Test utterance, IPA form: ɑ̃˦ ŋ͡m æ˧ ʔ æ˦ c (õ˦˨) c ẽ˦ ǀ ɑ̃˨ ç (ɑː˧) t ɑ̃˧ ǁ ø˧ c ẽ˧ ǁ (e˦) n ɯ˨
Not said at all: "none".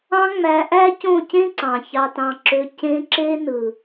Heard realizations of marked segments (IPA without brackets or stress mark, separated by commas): õ˦˨, ɑ˧, e˦